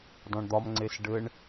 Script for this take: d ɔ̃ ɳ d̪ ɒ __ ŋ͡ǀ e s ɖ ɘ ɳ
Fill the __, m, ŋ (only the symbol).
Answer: m